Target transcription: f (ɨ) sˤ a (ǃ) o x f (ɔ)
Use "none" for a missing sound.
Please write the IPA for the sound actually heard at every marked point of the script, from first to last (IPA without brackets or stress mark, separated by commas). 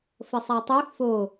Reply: ə, tˤ, o